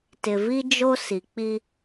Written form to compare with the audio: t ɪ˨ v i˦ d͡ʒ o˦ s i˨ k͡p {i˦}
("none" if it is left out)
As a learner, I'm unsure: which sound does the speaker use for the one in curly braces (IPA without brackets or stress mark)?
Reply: i˦